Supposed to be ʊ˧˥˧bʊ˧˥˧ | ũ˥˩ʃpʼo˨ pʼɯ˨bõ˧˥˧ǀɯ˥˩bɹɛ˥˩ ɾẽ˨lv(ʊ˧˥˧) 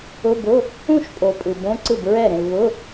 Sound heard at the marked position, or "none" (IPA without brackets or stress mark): ʊ˧˥˧